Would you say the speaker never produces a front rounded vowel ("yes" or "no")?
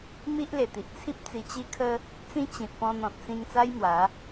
yes